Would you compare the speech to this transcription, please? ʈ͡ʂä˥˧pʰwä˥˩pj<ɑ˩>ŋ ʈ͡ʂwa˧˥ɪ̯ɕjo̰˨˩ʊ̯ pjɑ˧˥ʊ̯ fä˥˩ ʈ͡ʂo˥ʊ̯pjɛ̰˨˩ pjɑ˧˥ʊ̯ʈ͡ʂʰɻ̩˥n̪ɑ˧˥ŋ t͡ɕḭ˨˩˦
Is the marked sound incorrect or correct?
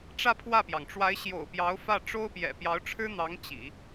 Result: correct